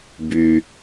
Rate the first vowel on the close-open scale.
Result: close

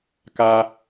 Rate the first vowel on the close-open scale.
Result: open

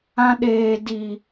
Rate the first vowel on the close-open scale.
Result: open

